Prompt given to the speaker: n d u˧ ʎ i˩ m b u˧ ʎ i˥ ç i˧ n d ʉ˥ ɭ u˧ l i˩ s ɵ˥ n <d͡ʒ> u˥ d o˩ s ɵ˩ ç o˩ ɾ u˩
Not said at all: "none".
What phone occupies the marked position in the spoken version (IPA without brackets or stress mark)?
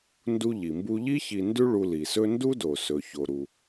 d